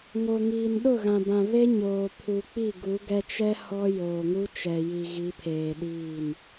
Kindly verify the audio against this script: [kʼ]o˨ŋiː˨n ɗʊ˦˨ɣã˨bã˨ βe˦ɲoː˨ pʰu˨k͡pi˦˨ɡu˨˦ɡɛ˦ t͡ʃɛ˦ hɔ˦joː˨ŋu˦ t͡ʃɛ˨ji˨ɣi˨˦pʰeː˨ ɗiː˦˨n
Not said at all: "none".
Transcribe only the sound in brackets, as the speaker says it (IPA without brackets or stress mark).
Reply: ŋ